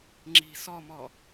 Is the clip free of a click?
no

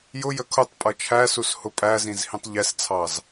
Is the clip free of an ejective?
no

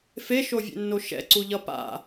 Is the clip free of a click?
no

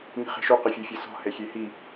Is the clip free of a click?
yes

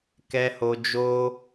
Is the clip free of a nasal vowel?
yes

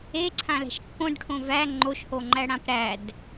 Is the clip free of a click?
no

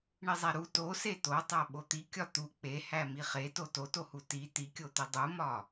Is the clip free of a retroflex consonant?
no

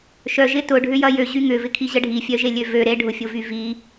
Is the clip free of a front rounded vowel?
no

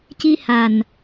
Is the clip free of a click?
yes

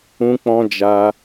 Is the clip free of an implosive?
yes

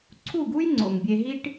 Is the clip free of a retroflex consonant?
no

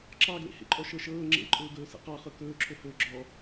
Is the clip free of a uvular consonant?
no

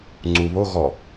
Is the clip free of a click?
no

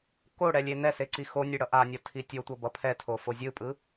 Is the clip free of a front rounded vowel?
yes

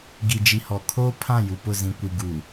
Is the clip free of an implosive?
yes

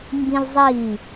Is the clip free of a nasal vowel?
no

